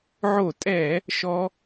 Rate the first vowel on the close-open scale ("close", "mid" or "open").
mid